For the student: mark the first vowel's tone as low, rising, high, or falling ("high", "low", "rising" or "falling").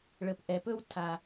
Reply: low